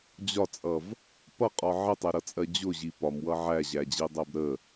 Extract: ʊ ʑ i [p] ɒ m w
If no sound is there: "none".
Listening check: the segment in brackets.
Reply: p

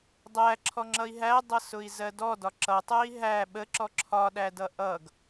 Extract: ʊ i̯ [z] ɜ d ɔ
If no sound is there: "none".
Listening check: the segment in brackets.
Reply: z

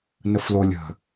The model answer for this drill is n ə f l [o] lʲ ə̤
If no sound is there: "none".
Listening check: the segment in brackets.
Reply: o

